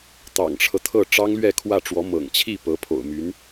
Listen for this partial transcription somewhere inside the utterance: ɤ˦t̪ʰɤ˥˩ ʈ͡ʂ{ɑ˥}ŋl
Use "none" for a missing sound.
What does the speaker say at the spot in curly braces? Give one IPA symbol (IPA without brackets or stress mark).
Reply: ɑ˥